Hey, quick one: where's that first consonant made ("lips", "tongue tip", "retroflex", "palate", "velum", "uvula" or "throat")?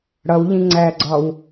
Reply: retroflex